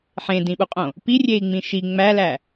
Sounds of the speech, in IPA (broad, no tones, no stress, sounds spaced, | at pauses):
ħ ẽ d ĩ ɓ u qʼ õ | p i rʲ e i̯ ŋ͡m ĩ ʃ i ŋ͡m æ l æ